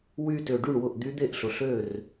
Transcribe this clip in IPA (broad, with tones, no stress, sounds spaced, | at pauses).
w y˧ t ʏ˩ ɖ y˥˩ ɳ w ʊ˥˩ ʔ d̪ y˧˥ d̪ e˥˩ ʔ ɬ ʊ˩ ɬ ø˥˩ r